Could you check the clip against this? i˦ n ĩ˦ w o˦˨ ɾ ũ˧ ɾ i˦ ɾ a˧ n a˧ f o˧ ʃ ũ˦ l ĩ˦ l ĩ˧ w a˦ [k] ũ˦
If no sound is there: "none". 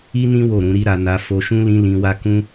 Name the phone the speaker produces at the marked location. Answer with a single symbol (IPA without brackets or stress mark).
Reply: k